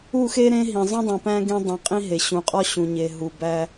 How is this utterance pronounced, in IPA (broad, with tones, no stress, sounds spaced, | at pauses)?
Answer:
u˦˨ x e˦ ɾ ẽ˦ ɦ ĩ˨ zˤ ũ˦ dˤ ĩ˨ p æ̃˦ ɡ ẽ˦ dˤ ĩ˨ qʼ ĩ˦ ɦ e˨ ɕ ũ˨ qʼ ɒ˦ ɕ ũ˨ ɲ e˨ ɦ u˨ b æ˦